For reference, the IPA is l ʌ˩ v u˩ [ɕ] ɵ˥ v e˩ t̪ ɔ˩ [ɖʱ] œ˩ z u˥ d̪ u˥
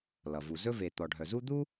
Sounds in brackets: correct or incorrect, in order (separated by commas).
incorrect, correct